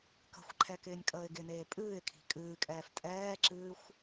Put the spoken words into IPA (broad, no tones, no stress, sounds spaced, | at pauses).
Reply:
k ə̤ xʷ ǃʰ ɛ k ɪː nʲ kʼ əː ɪ̯ ɡ ɪ n eː pʼ ɨː ɪ̯ kʰ i̤ kʼ ɨː kʼ ɛː f tʼ ɛː ǁ ɨː xʷ